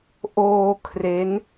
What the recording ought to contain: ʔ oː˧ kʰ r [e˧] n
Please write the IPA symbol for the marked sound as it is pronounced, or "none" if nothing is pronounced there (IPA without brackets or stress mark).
e˦˥